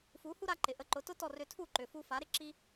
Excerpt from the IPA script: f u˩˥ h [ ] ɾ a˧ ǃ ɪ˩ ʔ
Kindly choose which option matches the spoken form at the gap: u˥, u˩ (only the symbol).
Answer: u˥